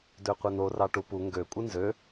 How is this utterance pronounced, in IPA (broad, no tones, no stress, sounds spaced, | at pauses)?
d ø qʷ e n o r ɑ ʈ u p u ŋ ɡ ø kʷʼ ɯ n z ø